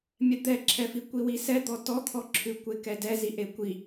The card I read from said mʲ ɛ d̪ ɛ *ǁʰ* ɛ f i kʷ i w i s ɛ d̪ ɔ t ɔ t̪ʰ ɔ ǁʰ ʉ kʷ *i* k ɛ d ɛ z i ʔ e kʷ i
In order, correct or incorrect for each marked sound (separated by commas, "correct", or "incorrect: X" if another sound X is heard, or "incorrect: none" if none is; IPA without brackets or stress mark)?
correct, incorrect: e